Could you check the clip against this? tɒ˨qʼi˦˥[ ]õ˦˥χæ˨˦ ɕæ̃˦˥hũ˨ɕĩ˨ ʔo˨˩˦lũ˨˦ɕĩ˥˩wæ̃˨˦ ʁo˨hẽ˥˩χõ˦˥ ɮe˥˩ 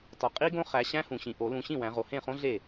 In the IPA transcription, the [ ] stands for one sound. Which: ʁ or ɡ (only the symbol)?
ɡ